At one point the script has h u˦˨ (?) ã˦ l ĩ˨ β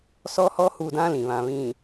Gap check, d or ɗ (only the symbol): d